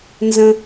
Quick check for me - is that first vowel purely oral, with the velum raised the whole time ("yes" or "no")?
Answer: no